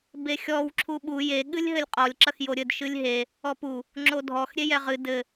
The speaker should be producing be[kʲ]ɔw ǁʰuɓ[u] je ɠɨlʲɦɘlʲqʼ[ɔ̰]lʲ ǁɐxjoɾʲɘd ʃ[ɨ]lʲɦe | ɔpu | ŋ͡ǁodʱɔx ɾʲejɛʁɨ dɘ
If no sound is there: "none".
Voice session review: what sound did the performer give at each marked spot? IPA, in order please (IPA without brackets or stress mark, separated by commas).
xʲ, u, ɔ, ɨ